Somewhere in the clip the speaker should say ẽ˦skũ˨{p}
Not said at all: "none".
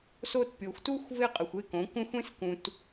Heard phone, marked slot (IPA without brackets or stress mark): t